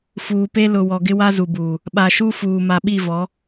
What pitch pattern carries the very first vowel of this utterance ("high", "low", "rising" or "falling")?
low